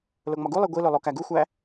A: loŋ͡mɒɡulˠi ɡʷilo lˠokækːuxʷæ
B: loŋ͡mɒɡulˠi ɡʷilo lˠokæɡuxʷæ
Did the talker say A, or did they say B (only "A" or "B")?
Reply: B